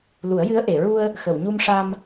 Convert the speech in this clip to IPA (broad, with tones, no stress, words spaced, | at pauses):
lu˨˩˦ə̯jɨ˧˥ə̯ʔe˨˩˨ɹu˧ə̯ | xə˨˩˨wɲu˧mʂa˧m